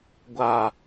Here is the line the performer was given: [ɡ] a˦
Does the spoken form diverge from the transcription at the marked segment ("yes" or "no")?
yes